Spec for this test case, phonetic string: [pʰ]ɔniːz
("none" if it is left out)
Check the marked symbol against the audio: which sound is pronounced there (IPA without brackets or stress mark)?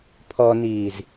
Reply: pʰ